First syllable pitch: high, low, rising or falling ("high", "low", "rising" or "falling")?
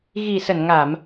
low